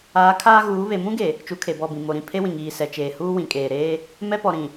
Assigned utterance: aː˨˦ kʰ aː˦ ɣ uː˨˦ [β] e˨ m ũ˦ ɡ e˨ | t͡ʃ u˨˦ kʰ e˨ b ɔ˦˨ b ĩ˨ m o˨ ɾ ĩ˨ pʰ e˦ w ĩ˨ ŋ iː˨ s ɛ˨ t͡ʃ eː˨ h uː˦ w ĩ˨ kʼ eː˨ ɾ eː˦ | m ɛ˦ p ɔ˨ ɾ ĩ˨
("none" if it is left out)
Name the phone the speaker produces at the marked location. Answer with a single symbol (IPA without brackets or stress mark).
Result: β